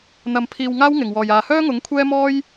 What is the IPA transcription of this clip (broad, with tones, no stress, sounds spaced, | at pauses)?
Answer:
n̪ ɐ˧ m pʰ iː˧ w ŋ aː˥ w ŋ ɪ˨˩ ŋ w ɔː˨˩ j aː˨ h œː˥ ŋ ʊ˨˥ ŋ kʷʰ ɛː˥ m ɔː˥ j